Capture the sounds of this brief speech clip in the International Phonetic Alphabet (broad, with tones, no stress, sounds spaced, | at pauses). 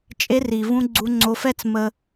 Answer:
t͡ʃʼ e˧ r i˨ v ũ˧ ɡ͡ǀ u˧ ŋ͡ǀ o˧ f ɛ˦ t͡s m ə˦